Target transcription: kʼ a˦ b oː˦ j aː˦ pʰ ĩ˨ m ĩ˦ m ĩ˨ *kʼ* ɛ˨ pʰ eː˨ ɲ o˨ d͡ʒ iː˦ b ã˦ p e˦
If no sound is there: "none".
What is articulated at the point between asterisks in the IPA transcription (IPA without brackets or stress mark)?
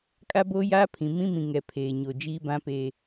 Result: ŋ